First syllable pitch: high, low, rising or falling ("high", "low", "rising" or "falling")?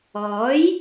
rising